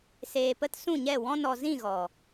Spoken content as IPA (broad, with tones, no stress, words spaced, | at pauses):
seː˧pə˦t sũ˦˨ɲɛ˦˨ wɔ̃˧nɔ˨zĩ˦˨ ɣɔ˨